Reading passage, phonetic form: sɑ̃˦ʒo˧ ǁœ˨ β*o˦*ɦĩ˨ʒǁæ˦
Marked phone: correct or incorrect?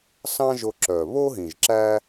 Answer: correct